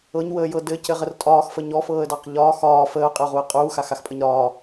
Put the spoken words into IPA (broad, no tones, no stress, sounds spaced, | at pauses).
ɤ ɲ w əː j ɤ d ɘ c ɘ ʁ ə r tʼ ɒː x f ə ɲ ɔ f ɤː ə̯ d ɑ q ʎ ɒː x ɒː f əː ʊ̯ qʼ ə ʊ̯ ʁ u ə̯ qʼ uː x a x a x pʼ ə ɲ ɾ ɒː